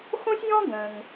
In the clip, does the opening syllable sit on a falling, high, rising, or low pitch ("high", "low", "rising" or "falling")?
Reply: high